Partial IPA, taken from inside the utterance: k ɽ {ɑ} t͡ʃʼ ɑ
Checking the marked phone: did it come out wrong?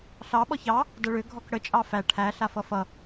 yes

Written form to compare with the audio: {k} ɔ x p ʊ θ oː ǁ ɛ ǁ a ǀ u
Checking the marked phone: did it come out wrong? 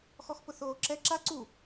yes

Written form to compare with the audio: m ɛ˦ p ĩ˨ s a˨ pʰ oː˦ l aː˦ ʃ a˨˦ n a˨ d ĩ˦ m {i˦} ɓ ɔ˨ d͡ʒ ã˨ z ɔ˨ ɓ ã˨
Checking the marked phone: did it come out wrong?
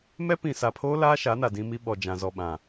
no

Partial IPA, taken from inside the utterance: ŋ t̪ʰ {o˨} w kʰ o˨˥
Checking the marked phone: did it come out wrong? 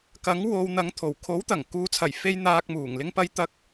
yes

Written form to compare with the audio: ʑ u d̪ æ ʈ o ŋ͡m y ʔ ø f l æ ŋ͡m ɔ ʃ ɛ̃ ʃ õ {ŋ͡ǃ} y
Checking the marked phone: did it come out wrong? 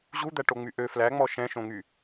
yes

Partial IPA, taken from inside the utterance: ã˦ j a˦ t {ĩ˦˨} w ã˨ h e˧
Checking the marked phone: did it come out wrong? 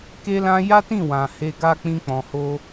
no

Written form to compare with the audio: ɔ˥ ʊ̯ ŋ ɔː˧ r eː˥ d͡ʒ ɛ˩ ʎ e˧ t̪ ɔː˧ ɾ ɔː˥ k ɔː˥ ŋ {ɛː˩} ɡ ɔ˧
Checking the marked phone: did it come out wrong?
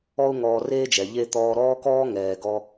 no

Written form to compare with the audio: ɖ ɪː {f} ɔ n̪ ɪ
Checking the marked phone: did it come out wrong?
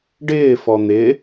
no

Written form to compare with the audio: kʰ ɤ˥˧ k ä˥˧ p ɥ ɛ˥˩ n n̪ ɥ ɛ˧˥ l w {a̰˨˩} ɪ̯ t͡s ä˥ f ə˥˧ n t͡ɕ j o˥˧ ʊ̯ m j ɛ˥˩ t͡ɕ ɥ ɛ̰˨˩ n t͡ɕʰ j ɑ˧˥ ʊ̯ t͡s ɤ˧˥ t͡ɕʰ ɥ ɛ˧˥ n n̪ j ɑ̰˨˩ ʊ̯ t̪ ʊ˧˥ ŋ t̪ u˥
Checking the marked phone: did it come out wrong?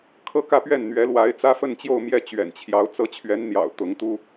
yes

